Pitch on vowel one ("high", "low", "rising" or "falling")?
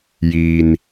low